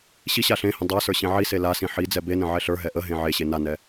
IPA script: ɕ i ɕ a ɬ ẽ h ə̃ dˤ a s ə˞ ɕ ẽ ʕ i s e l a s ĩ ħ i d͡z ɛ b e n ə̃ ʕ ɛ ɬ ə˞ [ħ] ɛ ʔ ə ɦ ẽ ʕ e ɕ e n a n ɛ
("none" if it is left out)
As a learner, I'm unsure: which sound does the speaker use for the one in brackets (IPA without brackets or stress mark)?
ɦ